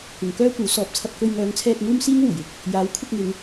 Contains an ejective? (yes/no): no